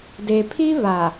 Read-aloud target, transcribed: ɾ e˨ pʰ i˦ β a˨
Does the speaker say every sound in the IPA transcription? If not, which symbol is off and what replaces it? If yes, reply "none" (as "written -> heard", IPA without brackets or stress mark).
ɾ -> d